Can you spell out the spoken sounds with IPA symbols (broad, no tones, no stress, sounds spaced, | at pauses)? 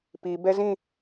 p i b ɛ z ĩ